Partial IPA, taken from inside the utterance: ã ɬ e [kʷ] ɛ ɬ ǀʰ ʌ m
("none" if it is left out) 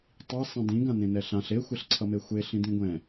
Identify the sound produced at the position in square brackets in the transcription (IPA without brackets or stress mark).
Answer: xʷ